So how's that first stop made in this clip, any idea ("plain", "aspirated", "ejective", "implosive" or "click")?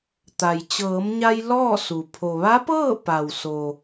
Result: plain